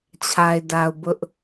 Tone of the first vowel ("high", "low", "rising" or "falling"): low